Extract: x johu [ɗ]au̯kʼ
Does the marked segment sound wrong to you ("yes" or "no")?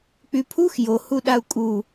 no